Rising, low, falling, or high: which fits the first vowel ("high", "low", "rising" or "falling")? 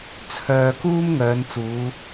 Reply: low